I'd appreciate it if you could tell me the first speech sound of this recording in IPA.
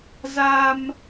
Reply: z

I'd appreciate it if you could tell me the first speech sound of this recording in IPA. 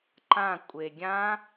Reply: ǃ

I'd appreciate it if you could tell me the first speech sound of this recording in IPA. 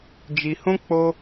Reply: d͡ʒ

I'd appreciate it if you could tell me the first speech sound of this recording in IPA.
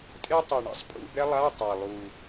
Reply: tʼ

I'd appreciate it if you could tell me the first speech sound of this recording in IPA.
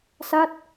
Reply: s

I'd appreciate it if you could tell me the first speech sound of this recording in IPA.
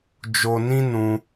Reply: d͡ʒ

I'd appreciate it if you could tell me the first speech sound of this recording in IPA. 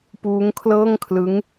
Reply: p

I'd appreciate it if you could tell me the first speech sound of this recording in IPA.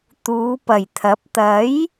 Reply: t̪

